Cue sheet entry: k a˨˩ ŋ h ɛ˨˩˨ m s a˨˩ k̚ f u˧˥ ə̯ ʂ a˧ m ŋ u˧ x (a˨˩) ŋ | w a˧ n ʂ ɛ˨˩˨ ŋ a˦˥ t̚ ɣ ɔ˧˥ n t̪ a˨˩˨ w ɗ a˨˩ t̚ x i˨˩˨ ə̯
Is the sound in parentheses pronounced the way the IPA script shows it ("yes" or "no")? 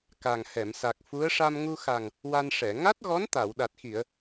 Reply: yes